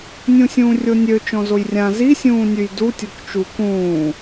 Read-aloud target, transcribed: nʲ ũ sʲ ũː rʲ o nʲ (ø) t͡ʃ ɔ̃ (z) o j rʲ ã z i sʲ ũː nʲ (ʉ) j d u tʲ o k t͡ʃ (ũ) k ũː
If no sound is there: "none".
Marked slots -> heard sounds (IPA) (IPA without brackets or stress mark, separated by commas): ø, z, ʉ, u